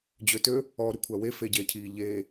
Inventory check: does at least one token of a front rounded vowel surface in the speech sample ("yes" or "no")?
yes